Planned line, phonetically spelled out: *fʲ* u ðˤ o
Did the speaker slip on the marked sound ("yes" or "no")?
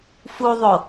yes